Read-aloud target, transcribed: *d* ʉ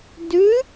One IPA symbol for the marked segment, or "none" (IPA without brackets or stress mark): d